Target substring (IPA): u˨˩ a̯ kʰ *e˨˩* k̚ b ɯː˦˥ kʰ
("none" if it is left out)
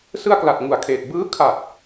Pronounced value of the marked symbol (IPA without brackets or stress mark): eː˨˩